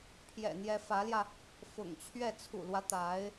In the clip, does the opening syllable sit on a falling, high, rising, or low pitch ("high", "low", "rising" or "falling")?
low